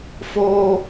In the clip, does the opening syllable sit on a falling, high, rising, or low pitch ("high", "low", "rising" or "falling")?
high